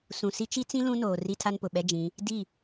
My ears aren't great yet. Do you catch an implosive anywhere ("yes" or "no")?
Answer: yes